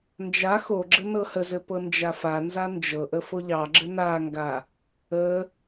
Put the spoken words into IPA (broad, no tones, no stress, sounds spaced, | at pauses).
n d͡ʒ a x o ɡ͡ǁ ɘ n ɤ h ə z ɘ p ɤ n d͡ʒ a f a n z a n d͡ʒ ɤ ʔ ə f o ʎ ɑ ɡ͡ǁ ɘ n a ŋ ɡ a | ə